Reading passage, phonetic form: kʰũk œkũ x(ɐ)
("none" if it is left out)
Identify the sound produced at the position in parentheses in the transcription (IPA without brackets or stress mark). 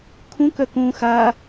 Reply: a